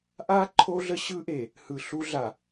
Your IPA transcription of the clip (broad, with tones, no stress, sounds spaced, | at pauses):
ʔ a˦ ǃʰ o˦ ɮ ə˦ ɕ ɯ˦ ʔ e˨ | h ɯ˨ ɬ u˦ ɮ a˨